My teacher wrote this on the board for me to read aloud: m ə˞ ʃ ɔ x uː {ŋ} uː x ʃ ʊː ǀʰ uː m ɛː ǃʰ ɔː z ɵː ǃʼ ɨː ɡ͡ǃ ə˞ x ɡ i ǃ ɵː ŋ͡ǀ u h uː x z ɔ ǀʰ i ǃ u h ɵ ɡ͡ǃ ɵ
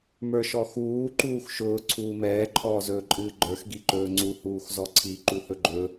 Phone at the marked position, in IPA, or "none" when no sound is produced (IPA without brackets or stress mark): ǃ